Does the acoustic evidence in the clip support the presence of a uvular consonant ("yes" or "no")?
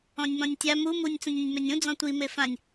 no